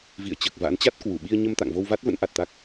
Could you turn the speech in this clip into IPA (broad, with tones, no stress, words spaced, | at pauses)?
vḭ˧˨ə̯t͡ɕəː˨˩k̚ va̰˧˥n t͡ɕa˦˥t̚kwu˧˩ɓi˧ə̯ ɲə˧mt̪a̰˧˨ŋ vo˧wva˦˥t̚ və̰˧˥nʔa˨˩t̚ t̪a˦˥k̚